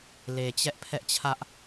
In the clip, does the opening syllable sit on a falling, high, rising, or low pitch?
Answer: low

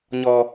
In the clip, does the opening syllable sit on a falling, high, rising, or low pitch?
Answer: high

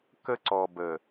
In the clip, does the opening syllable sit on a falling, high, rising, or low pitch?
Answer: high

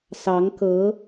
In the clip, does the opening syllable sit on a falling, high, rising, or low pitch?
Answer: rising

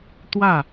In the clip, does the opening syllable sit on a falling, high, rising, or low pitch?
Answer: falling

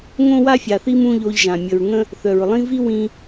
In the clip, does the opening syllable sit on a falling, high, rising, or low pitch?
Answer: high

